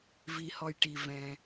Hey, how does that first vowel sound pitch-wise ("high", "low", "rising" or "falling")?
low